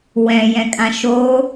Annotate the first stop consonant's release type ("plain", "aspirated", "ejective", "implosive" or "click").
ejective